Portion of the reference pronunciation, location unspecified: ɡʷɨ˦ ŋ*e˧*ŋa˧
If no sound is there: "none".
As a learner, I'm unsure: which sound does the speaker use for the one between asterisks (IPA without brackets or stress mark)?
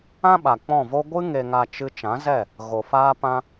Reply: e˧